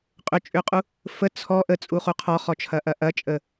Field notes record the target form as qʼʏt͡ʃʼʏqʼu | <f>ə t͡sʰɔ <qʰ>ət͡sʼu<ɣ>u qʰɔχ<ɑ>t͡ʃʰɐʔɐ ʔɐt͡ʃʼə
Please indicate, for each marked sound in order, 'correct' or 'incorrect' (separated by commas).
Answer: correct, incorrect, incorrect, incorrect